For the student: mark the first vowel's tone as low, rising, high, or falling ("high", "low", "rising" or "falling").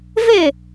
falling